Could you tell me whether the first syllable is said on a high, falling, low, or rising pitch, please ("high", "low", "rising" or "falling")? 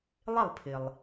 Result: falling